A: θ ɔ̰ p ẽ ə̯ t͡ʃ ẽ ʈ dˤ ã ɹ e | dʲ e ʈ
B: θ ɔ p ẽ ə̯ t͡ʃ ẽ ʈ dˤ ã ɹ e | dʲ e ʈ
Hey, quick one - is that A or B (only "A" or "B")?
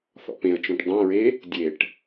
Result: A